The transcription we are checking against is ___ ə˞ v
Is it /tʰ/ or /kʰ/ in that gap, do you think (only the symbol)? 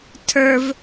tʰ